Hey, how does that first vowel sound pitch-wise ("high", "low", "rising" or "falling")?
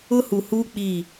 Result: high